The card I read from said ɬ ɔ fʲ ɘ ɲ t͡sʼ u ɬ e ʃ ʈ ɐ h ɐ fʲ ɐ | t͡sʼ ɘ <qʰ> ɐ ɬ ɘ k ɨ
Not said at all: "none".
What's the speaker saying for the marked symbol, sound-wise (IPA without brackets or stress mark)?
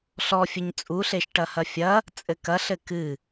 k